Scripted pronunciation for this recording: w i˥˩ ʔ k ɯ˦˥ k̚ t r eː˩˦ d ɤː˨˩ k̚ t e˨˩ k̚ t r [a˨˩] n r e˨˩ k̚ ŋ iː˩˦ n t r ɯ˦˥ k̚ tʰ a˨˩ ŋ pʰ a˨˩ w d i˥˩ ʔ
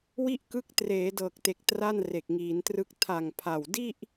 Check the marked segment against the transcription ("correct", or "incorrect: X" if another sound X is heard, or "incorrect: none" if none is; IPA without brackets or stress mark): incorrect: a˥˩